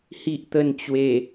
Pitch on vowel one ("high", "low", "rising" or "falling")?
low